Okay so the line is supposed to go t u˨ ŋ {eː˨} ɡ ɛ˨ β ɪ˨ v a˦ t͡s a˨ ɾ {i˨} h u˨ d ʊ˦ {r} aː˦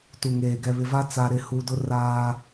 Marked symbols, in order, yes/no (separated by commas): yes, no, yes